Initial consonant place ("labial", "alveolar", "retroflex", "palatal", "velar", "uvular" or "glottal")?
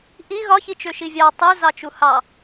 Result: glottal